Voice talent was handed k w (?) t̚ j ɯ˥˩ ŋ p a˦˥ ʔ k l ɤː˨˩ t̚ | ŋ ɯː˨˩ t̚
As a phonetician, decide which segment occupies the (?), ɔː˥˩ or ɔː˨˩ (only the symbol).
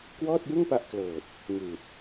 ɔː˥˩